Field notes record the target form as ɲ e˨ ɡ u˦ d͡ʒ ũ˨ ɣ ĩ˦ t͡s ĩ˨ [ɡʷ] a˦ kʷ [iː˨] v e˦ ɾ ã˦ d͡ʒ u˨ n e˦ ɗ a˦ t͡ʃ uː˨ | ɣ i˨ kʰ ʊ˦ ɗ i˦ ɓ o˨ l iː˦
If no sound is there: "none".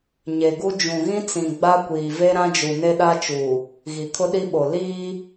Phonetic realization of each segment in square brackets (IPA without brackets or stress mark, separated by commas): ɡ͡b, iː˨